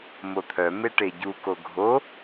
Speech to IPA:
mot̪ʰœme ʈeɟuko ɡʱo

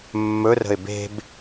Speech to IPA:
mːɵrə̤ɪ̯ be̤b

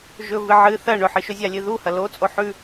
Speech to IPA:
ʒɵ vɨʕɨ θɐ ɳɵħɨʃɵ zʲalʲɨðu hɐlot͡sʼo ħʉ

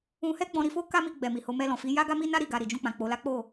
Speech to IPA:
ũ˧hɛ˦ ɡ͡bɔ̃˧ɾi˧fo˦ ka˦mi˧ ɡ͡bɛ˨mi˨ho˧ mɛ˧lɔ̃˨fi˨˦ ja˦ɡa˦mi˦na˦ ɾi˦˨ ɡa˧ɾi˨ d͡ʒũ˧k͡pã˨ k͡po˧la˦ k͡po˦˨

